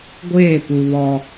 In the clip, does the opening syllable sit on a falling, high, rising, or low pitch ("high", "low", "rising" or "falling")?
falling